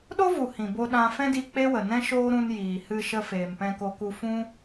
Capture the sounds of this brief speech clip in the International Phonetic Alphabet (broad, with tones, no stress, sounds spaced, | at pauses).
ɗ o˦ v u˨ h ĩ˨ b o˧ ɗ ã˧ f ɛ̃˦ d i˧ k͡p e˦ w ə˨ n ɛ̃˦ ʃ oː˦ ɾ ũ˧ n j iː˨ h ɨ˧ ʃ ə˧ f eː˨ m p ɛ̃˧ k o˧ k u˧ f ũ˦